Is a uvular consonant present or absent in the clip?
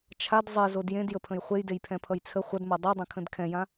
present